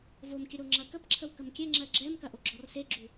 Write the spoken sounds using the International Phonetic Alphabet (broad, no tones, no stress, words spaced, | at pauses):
vomkʲə ɾoŋ͡ǁɐkəpǁʰəw kəmkʲɛŋ͡ǁɜ ɡ͡ǁɛmkɐ ʔoɡ͡ǁɔrseɡ͡ǁu